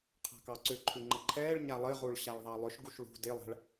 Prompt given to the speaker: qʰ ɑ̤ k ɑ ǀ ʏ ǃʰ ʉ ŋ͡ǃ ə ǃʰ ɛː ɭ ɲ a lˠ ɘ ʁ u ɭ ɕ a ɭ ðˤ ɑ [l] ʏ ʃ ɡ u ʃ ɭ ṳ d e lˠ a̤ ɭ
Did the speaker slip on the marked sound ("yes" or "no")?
yes